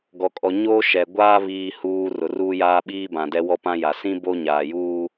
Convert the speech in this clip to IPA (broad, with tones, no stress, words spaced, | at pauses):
ɡɔ˨kʼɔ˨ ɲoː˦ʃɛ˨ɡʷaː˦ βiː˨huː˨ rʊ˨ruː˦jaː˦ ɓiː˦bã˨dɛ˦wɔ˦ pã˦ja˨ sĩ˦ bo˦ɲaː˨juː˦